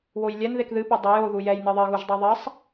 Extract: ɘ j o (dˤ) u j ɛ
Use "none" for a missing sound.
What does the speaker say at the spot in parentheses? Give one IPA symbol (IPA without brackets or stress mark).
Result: ð